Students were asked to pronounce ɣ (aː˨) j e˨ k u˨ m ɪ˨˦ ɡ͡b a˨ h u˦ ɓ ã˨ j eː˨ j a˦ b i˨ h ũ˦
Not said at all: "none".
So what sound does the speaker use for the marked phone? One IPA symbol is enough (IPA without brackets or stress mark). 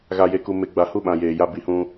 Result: a˨